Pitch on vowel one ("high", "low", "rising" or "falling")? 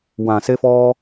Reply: low